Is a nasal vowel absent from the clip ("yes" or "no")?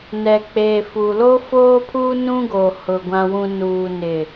no